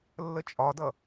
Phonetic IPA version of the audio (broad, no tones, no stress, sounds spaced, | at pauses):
lː ə t͡ʃʼ ɒ d ʌ